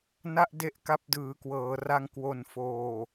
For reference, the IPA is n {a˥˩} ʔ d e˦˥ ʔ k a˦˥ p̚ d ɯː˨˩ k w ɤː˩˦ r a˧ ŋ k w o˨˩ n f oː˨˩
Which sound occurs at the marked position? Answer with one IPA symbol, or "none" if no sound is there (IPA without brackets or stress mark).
a˥˩